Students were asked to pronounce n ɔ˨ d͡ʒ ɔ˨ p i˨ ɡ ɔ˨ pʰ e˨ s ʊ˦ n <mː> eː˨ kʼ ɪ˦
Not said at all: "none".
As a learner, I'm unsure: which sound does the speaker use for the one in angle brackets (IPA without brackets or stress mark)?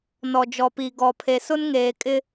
ŋ